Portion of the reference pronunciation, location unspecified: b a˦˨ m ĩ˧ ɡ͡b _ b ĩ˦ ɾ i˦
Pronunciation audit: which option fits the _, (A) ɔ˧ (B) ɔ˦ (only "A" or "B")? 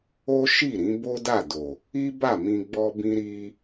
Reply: B